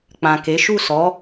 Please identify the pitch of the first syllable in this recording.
low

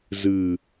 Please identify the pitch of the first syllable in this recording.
low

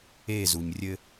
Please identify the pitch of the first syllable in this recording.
falling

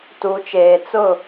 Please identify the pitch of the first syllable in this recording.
rising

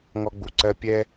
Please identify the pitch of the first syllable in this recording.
high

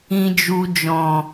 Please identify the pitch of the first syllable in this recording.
low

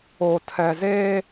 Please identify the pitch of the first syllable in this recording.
low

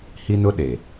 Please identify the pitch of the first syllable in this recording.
high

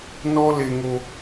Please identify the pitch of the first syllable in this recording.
high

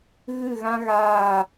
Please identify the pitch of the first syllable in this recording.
falling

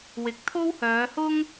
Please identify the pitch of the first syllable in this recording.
low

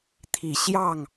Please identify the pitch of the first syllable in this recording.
low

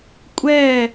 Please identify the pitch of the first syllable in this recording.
falling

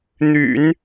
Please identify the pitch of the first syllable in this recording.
low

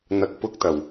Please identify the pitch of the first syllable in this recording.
low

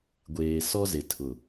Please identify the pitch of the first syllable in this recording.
low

